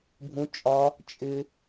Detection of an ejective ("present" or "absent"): present